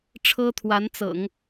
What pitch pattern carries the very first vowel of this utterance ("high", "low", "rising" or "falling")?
high